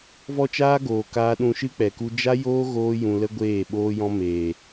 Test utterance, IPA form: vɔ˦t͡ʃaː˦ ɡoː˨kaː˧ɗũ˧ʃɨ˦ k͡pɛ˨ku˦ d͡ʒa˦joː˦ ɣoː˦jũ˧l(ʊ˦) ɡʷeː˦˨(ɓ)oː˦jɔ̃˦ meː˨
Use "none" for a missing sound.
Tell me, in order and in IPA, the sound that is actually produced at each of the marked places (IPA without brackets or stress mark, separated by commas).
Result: ə˦, ɓ